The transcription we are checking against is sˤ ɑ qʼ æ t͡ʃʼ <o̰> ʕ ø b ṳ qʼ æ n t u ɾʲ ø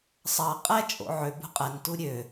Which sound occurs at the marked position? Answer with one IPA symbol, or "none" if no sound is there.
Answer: o̰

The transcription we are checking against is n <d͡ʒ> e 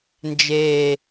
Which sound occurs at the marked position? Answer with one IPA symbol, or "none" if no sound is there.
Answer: d͡ʒ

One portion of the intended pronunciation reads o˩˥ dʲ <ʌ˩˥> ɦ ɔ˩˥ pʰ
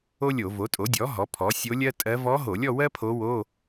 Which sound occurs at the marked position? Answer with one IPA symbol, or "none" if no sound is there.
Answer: ɔ˩˥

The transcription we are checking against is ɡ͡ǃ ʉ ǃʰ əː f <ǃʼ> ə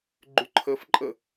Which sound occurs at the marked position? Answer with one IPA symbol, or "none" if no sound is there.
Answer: ǃʼ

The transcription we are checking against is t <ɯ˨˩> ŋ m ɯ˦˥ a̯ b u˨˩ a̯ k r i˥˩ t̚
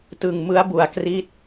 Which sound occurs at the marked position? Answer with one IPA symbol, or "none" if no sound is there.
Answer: ɯ˨˩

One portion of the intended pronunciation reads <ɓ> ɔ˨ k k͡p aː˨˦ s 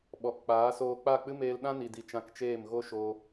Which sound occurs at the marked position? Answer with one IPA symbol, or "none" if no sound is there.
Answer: ɓ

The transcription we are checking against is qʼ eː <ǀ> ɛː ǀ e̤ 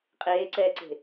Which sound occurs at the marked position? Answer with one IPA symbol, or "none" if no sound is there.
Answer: ǀ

